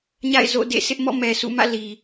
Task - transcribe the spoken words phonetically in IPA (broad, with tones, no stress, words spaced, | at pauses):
ɲa̰˦˨ɪ̯zo̰˦˨ dḛ˦˨sɪ˦ʔmɔ̰˦˨ mɛ˨sṵ˦˨mä̰˦˨ li˨